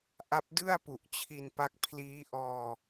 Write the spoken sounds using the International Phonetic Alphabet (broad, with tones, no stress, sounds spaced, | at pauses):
ʔ a˦˥ p̚ d ɯ˥˩ a̯ p u˨˩ ʔ t͡ɕʰ i˧ n p a˦˥ k̚ pʰ l iː˦˥ ʔ ɔː˧